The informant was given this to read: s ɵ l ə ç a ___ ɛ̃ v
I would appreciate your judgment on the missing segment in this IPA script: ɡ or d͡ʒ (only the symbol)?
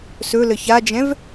d͡ʒ